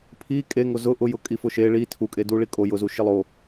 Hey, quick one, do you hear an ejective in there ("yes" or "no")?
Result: yes